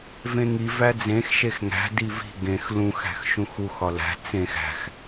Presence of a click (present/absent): absent